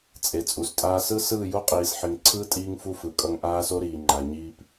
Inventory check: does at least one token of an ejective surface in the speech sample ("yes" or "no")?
yes